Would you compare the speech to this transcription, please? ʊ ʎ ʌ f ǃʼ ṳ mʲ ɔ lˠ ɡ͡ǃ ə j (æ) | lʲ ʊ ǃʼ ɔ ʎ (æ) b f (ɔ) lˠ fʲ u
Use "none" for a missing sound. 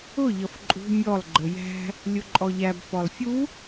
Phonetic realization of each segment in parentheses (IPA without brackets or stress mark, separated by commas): æ̤, æ, ɔ